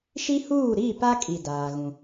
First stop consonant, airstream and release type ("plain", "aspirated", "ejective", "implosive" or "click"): plain